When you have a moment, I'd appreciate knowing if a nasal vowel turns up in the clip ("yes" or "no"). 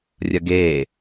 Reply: no